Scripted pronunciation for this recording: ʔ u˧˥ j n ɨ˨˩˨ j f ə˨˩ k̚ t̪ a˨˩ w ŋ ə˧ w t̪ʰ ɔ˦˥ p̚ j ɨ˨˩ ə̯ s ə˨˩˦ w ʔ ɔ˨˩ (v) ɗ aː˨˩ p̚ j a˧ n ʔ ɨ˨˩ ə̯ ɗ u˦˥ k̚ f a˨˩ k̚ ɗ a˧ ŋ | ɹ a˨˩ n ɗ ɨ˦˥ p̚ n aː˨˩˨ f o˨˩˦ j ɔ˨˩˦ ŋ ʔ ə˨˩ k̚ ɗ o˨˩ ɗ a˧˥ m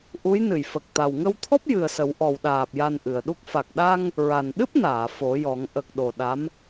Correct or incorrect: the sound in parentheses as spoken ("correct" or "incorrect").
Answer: incorrect